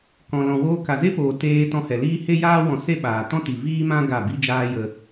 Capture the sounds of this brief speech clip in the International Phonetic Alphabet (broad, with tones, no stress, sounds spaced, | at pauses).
k ɔ̃˨ l ɔ̃˨ w oː˧ k a˨ z e˦ p oː˨ t eː˧ t ɔ̃˧ h ɛ˨ l iː˦ h e˦ j aː˦ w ɔ̃˨˦ s e˦ ɓ aː˨ t ɔ̃˦ t i˨ v iː˦ m ã˦ ɡ a˦˨ b i˧ d͡ʒ aː˧ j ə˧